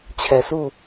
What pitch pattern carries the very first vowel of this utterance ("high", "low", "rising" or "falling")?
low